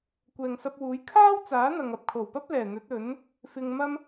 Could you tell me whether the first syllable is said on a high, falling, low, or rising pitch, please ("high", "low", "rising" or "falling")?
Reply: low